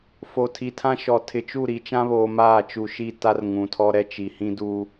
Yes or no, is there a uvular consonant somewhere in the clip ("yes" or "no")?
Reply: no